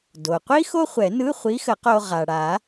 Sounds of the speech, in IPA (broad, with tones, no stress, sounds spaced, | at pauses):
d o˩ qʷ i˥ x o˥ χʷ ɛ˨˩˦ n ɯ˧˥˧ χʷ i˧˥ x ə˨˩˦ q o˧ ʁ a˩ ɽ a˨˩˦